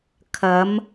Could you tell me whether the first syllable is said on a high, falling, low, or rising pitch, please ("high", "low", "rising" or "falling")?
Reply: rising